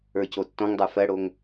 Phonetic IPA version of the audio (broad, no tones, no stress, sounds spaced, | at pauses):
ə˞ c o tː ɔ̃ ŋ dˤ ə˞ f ɜ ɽ o ŋ